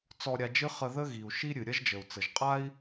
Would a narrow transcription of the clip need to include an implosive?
no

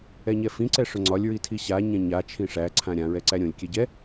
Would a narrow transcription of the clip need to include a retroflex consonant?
yes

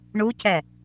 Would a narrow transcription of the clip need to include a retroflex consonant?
yes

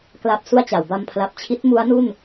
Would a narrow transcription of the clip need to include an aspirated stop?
yes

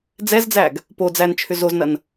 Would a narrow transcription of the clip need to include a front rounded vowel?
yes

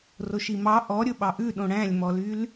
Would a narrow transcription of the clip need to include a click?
no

